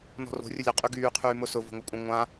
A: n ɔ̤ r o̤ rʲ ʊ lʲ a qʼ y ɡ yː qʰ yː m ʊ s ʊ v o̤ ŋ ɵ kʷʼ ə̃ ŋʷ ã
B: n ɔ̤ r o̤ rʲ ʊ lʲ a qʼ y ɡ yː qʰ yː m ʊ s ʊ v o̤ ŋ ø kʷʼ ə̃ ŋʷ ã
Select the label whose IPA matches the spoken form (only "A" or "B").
A